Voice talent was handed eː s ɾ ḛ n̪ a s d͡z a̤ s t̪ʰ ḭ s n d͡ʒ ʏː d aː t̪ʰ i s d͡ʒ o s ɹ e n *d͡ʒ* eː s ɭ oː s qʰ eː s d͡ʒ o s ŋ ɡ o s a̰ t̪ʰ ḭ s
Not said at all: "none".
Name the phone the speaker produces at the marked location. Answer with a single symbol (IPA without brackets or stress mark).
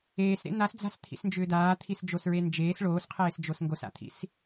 d͡ʒ